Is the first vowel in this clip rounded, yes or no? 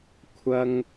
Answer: no